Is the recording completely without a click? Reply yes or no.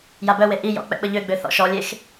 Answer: yes